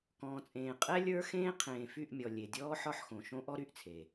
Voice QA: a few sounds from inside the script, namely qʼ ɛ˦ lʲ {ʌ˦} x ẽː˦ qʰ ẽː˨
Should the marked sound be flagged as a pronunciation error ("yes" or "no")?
yes